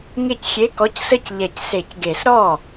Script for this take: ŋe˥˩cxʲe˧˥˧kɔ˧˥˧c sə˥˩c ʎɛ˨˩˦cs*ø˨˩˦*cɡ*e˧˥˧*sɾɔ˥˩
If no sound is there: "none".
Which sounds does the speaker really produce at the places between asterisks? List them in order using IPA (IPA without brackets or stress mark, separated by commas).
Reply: e˨˩˦, e˨˩˦